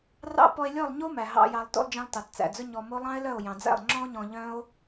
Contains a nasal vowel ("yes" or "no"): yes